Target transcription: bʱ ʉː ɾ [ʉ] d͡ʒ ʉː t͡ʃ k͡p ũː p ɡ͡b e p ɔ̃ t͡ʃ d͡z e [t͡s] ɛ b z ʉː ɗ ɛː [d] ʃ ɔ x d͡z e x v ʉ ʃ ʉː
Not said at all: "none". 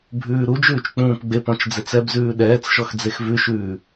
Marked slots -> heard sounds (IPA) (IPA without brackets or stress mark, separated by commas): u, t͡s, t͡s